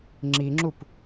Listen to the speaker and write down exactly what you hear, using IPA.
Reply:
ŋ͡ǁ i ŋ͡ǁ u p

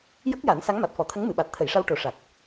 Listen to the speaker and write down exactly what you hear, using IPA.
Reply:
j ə˦˥ k̚ j a˨˩˦ n s a˧˥ ŋ m a˨˩ t̚ f ɔ˨˩˦ t̪ʰ ə˧˥ ŋ m ɨ˨˩˨ ɓ a˨˩ t̚ t̪ʰ ə˨˩˨ j ʂ a˧ w ʈ o˨˩˦ ʂ a˨˩ k̚

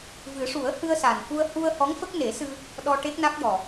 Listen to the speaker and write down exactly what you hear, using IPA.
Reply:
v ɨ˨˩˦ ʂ u˨˩˦ ə̯ h ɨ˧ ə̯ s a˨˩ n f u˧ ə̯ h u˧ ə̯ h ɔ˧˥ ŋ f ə˦˥ k̚ n e˨˩˦ s ɨ˧ | ɗ ɔ˧ ʈ e˦˥ k̚ n a˦˥ k̚ j ɔ˨˩

